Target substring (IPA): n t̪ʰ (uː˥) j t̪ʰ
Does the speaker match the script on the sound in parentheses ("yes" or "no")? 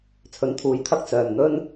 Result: no